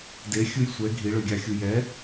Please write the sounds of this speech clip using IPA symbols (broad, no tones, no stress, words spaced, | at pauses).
de xʲujsʷɛ ɡʱiɭøɡʲɑxʲu jɛ